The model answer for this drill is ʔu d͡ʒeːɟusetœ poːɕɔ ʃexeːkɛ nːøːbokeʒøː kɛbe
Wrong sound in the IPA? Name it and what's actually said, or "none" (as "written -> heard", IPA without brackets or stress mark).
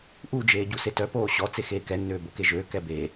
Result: ʃ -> t͡s